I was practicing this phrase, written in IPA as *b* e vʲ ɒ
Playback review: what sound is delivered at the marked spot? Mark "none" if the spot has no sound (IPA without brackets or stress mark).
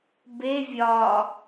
b